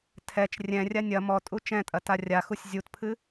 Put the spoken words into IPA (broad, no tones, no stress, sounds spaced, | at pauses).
tʰ ɛ t͡ʃ rʲ ɛ̃ rʲ a nʲ ɐ m ɔ tʼ u t͡ʃ ɛ̃ tʼ ɐ t a rʲ a x u sʲ zʲ u t pʰ ɨ